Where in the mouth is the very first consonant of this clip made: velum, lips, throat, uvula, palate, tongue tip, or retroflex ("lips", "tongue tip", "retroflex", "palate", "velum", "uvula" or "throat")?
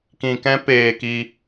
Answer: velum